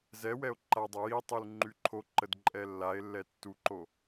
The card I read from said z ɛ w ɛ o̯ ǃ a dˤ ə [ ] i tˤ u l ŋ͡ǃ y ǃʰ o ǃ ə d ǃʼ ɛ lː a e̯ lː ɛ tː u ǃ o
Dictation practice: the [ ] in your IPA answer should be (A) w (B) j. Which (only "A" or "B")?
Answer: B